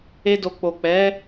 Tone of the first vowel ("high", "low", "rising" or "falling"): high